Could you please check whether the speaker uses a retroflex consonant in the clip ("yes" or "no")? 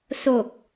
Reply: no